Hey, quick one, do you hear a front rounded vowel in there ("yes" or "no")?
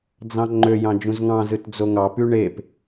yes